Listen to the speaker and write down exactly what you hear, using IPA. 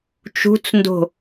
t͡ʃ ṳ t͡s n d o̤

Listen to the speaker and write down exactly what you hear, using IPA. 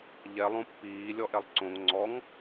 ʎ ɛ lˠ õ pː iː lʲ ɔ ʔ ɛ lˠ ǀ õ ŋ ŋ͡ǀ ɔ ŋ

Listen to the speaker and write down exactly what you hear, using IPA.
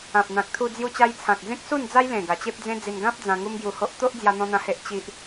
ã˨ p̚ n̪ ã˨ k̚ t̪ʰ u˧ d͡z j u˧ t͡ɕ a˧ j t͡sʰ ã˨ k̚ d͡z ẽ˦ k̚ s u˥˧ n d͡z a˦ j l ẽ˨˩ ɡ a˨˩ t͡ɕ e˦ p̚ d͡z ẽ˦ d͡z i˧ n ɡ ã˦ p̚ d͡z ã˧ ŋ u˦ m ɡ j u˧ h o˦ ʔ t̪ o˦ ʔ d͡z j a˦ n̪ ɔ̃˦ n̪ ã˦ h e˦ ʔ t͡ɕ i˦ ʔ

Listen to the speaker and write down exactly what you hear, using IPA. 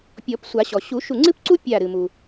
pʲ ɔ˨˩˦ p sʷ a˨˩˦ ɕ ɔ˩ ɕ u˨˩˦ ʃ u˧˩ ŋ͡ǀ ɨ˥ p ǀ u˥ pʲ a˧˩ ɾ ɨ˩ m u˩

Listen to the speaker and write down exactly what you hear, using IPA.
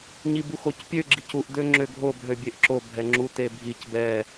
ɲ i b u x o c pʲ ø ɡ͡ǁ i c u ʔ d ø ŋ͡ǁ ø ɡʱ o b ɦ ø bʲ e ʔ ǁ o bʱ ɛ ŋ͡ǁ u t e bʱ i c b ɛ

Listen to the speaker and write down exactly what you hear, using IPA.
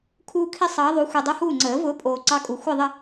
kʰ uː˦ kʰ i˦ sˤ ɑː˨˦ ðˤ u˨˦ xʷ i˨ dˤ o˦ h uː˥˨ ŋ͡ǀ əː˨˩˦ v ʊː˨˦ pʼ oː˨ ǀ ɑ˦ kʼ u˨ xʷ ə˥˨ ðˤ ə˥˨

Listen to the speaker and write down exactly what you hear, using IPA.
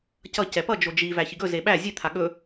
c ʌ c ɛ p ʌ d͡ʒ o d͡ʒ i v æ ç i ɡ ɵ z e ɓ æ zʲ e t̪ʰ a ɠ ɵ

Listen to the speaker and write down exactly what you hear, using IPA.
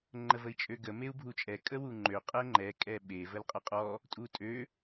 ŋ͡ǃ ə v ə i̯ t͡ʃʼ ø ɡ ə m e u̯ bʱ u t͡ʃʼ ɛ kʼ ə w u ŋ͡ǃ ø qʼ ɛ ŋ͡ǃ ɛ kʼ ɛ ɓ e v ə l qʼ ə qʼ ɔ | tʼ u tʼ ø

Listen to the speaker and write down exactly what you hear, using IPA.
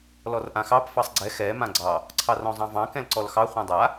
l ɔ r ʔ ã x ɑ p f ɑ sˤ ɡ͡ǀ ɛ x ɛ m ã ɡ͡ǀ ɑ | ǀʰ ɑ r ɔ̃ zˤ ɑ̃ v ɑ̃ k ɛ̃ l ǀ ɔ l x ɑ χʷ ɛ̃ dˤ a

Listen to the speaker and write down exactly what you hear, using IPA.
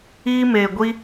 iː˧ m eː˨ ɡʷ i˧

